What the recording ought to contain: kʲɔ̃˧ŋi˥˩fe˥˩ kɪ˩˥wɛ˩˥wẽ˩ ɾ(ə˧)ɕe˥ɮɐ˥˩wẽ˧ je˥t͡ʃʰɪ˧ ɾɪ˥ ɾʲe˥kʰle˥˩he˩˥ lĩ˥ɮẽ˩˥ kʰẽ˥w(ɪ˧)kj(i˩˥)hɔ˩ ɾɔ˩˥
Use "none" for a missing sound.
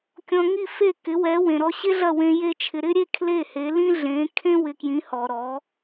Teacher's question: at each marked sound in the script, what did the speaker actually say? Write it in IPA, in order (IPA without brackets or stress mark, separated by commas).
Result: ɔ˧, ɪ˧, ĩ˩˥